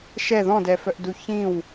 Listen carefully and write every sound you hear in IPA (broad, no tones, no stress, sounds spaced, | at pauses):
ʃ ɛ ð ɔ̃ d ɛ f œ ʔ d u ç ĩ w